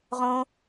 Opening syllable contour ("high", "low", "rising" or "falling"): high